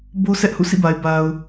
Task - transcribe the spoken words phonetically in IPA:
b o˦ sʰ ɛ˦ ʔ h ṵ˦˨ sʰ ḭ˦˨ b a˨ ɪ̯ b a˨ ʊ̯

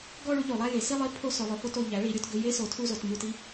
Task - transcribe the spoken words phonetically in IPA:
ɡ ɔ˦˨ ɭ u˩˥ ʎ o˩˧ lˠ æ˦˨ j e˩˥ s i˦˨ lˠ i˦˨ pʰ o˦˨ s ɵ˩˧ lˠ ɵ˩˧ f o˧˥˧ t o˩˧ ʎ æ˩˥ ɭ i˩˧ ɾʲ o˦˨ t ɡ ɵ˧˥˧ j e˧˥˧ s o˩˥ tʰ u˦˨ z o˩˧ t m u˦˨ t i˧˥˧

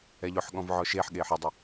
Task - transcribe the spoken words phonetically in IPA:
ɛ ʎ ʊ ħ ɠ ɔ̃ v ʕ ɔ ʃ e ħ ɠ eː ħ ɪ dˤ ɪ

